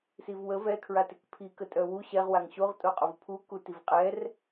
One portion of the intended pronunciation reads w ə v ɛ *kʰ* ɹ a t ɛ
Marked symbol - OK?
yes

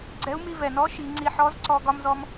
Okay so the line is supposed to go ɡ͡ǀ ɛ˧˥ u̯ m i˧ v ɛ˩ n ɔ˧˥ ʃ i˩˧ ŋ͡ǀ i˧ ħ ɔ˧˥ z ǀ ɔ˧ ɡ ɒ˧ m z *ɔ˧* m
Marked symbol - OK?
yes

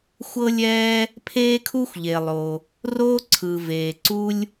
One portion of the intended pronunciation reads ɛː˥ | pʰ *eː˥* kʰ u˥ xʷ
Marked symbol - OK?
yes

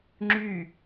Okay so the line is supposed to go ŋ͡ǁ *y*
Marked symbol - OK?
yes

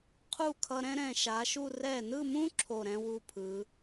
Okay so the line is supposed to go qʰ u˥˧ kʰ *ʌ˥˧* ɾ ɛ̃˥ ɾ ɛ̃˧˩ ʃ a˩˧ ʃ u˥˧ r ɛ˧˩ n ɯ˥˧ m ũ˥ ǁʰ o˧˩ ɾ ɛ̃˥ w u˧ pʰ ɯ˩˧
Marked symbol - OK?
no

